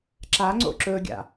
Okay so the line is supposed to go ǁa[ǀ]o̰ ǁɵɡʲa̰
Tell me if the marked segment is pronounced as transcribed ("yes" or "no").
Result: no